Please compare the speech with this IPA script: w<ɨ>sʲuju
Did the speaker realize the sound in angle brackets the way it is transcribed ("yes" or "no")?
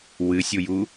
yes